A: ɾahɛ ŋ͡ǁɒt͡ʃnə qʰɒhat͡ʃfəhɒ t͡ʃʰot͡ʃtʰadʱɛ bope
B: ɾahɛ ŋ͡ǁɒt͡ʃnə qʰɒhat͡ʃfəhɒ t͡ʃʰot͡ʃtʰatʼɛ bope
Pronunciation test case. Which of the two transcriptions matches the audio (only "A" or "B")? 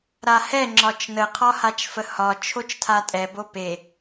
B